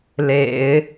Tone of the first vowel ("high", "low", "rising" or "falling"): low